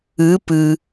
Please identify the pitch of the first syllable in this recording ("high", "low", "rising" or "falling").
rising